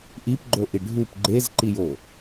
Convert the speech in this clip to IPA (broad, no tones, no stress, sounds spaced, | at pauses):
ʔ i p ɡ͡ǃ o ʔ i ɖʱ u p ɡ͡ǃ e z ǃ i j o